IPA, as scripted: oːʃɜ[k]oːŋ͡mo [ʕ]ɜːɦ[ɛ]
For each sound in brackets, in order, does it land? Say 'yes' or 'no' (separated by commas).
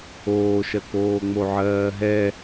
yes, yes, yes